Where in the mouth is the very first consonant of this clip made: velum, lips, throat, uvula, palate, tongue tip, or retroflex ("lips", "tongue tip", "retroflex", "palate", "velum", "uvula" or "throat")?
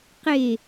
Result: uvula